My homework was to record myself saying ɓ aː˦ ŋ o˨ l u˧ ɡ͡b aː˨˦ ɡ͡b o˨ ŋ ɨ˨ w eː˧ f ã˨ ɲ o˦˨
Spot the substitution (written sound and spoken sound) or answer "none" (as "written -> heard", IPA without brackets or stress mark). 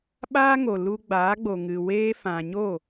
none